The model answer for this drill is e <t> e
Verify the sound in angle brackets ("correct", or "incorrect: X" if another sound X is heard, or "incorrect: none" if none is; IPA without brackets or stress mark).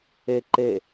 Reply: incorrect: ǃ